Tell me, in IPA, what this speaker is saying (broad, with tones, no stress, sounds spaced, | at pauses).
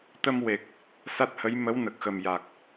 t̪ ə˧ m w e˨˩ k̚ | s a˦˥ t̚ h ə˧˥ j m ə˧˥ w n ə˨˩ k̚ x ə˨˩ m j a˨˩ k̚